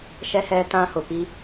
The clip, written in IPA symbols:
ʃ ɛ˦ h ɛ˦ t ã˦ h ʊ˨ p i˦

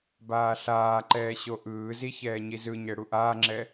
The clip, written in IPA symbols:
b aː ɬ aː ǃ ɛː ɕ o ʔ ɯː z i ç ɛː ɲ i z ɯ ɲ ɛ ɽ u ʔ aː ŋ͡ǁ ɛ

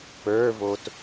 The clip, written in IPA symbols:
p ə˞ v o t

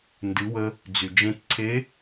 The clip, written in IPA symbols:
n d ɨ˩˧ w ə˧ | d͡z y˩ d͡ʒ ẽ˧ t ǀʰ e˧˥

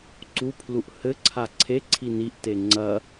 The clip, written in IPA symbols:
ǀ u pʰ l u ʔ h ɘ ǀʰ a ǀʰ e ǀʰ i n i ʔ t e ŋ͡ǀ ɐ

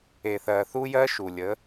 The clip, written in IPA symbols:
e˨ θ ɜ˨ θ u˦ j ɜ˦ ʃ u˨ lʲ ə˨˦

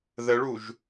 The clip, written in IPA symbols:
ð ə ɭ u ʒ

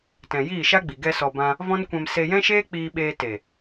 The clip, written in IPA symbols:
t ɛ̃˨ j iː˦˨ ʃ a˦ ɡ͡b i˨ ɡ ɛ˧ s ɔ˨ b ã˧ | v ɔ̃˦ n kʷ ɛ̃˧ m s e˧ j ɛ̃˦ ʃ eː˦ k͡p iː˧ ɓ eː˧ t e˨

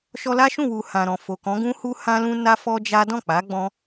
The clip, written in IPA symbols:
ʃ ɔ˧ l a˦ ʃ ũ˦˨ w u˨ h ã˨ ɾ ɔ̃˨ f o˨ k ɔ̃˨˦ ɡ ũ˦ h u˦ h ã˧ l ũ˧ n a˦ f ɔ˦ d͡ʒ a˦ d ɔ̃˦˨ k͡p a˨˦ ɡ͡b ɔ̃˦

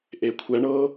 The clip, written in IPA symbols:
ʔ e kʷʰ ɛ ɳ ɤ

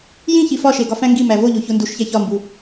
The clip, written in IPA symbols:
j ĩ ç i f ɒ ʃ e ɡ ɒ f æ̃ ŋ ɡ i m æ v o ʎ o ç o n d u ʃ ç æ ç ɒ m b u

